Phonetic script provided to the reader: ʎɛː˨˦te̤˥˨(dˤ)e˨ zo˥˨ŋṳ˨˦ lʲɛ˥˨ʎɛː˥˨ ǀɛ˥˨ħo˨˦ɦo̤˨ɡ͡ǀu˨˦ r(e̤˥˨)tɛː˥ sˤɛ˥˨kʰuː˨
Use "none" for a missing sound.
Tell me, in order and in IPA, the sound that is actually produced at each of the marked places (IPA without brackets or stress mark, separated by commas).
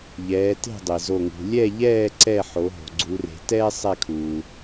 dˤ, e̤˨